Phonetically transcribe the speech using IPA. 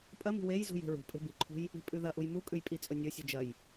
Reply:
pʼ ɐ m i̤ w e j z ṳ j e̤ ɹ ṳ pʼ e̤ b i ǃʰ ṳ j | i̤ pʼ ʉ ð ɐ ʔ u j m u kʼ ʉ j pʼ i t͡sʼ ɵ nʲ ɵ sʲ ʉ d͡ʒ ɐ j

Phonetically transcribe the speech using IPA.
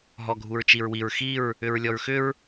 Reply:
ɦ ɔ ɡʱ u ɹ t͡ʃ i ɹ w i ɹ x i ɹ | ʏ ɹ lʲ ɔ ɹ x ʏ ɹ

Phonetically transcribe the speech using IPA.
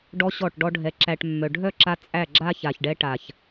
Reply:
ɖ ɔ˦ ɕ ɔ˦˨ ʈ ɖ ɔ˦ ɖʱ ɛ˧ ǁ æ˧ ʈ mː œ˨ ɖʱ œ˦˨ ǁ a˧ t͡sʼ æ˦˨ ɡ͡ǁ a˦ ç a˨ ç ɖ ɛ˧ ʈ a˨ ç

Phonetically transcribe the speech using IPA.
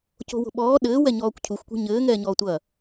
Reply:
c o̤ w o̤ ɓ ɔː ɗ ɘː w ɛ ɲ ɔː kʷ cʰ u xʷ kʷ e̤ ɲ ɘː ŋ ɛː ɲ ɔː tʷ ɐ

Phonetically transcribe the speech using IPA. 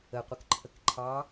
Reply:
ə qʷ ə k ǃʰ ə k ǃʰ ɑ

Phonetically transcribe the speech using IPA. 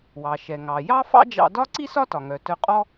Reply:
w ɑ˩ ʃ ɛ˩ ŋ ɑ˩ j ɑ˥ f ɑ̰˥ d͡ʒ ɑ̰˧ d ɒ˥ ǀ i˥ s ɒ˥ t ɒ˩ ŋ œ˩ t œ˧ qʼ ɔ˥

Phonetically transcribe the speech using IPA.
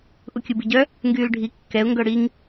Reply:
ʔ u kʲ u b i ɟ œ | ŋ ɡ yː l ɖʱ i kː ɛ ʊ̯ ŋ ɡ œ ɽ i ŋ

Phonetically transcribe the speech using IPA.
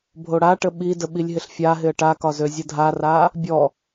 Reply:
bʱ o ɽ a ʈ ə ɓ i d ə ɓ i lʲ ɦ ɪ ɬ fʲ a ɦ ɪ ə̯ ʈ a k ɒ z ø zʲ ə dʱ a r a | bʲ ɔ

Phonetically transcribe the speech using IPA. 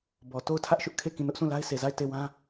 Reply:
b ɔ˨ t o˦˨ ʊ̯ tʰ ä˦ ʔ ʃ ʊ˦ ʔ kʰ e˦˨ k ĩ˦˨ n ʊ˦ ʔ s ũ˦˨ l a˦ ɪ̯ s e˨ z a˦˨ ɪ̯ t e˦˨ w ã˦

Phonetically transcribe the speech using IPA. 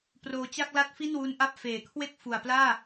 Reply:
p r oː˧ t͡ɕ a˥˩ k̚ l a˥˩ t̚ f i˥˩ n w u˦˥ n ʔ a˦˥ p̚ f eː˨˩ kʰ w e˥˩ k̚ f u˨˩ a̯ p l aː˥˩

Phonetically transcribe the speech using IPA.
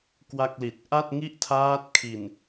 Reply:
k w a˥˩ k̚ l i˨˩ t̚ ʔ a˥˩ t̚ ŋ i˥˩ ʔ tʰ aː˦˥ t̚ kʰ i˨˩ n

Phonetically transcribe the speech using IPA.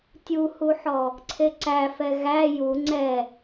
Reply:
tʲ u h u ħ ɔ | ǀʰ e ǀ æ f ɛ ɣ æ j u ŋ͡ǀ ɛ

